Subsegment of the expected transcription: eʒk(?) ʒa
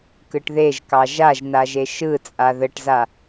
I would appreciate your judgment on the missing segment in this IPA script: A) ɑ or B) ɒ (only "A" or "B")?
A